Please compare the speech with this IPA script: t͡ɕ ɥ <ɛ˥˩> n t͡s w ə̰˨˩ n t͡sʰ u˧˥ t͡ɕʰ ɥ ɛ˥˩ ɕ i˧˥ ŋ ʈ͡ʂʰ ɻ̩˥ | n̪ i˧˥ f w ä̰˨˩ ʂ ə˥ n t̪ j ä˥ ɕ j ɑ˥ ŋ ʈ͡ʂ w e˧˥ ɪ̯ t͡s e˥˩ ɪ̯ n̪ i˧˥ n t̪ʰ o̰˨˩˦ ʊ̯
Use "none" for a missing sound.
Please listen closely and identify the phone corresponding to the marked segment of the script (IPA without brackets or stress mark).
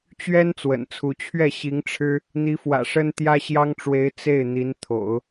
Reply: ɛ˥